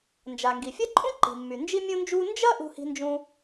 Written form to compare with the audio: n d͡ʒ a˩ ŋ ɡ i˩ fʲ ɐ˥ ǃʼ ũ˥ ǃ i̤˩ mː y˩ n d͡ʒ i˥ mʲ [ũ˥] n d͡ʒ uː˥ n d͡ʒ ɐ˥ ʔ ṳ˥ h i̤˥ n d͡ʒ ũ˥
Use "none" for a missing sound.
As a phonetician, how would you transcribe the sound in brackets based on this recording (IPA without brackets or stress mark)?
ũ˥